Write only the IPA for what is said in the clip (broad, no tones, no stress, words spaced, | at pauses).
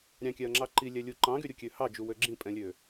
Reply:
ɾʲɑ̃kʲæɐ̯ŋ͡ǁɑ ǃilʲælʲu ǃɑ̃ɡyɾʲukʲø hɑd͡ʒuwø ɡ͡ǁĩpʼɛ̃lʲø